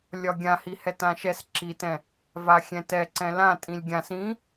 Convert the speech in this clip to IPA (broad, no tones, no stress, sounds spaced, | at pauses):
lʲ ɒ ɡʲ ã h i h ɛ t ã ʃ ɛ s ǁ i t ɛ̃ | v a xʲ ɛ̃ t ɛ ǀ ɛ̃ l ã tʼ ĩ lʲ ɡʲ ã s ĩ